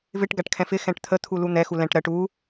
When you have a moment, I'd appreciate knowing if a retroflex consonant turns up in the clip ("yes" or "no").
yes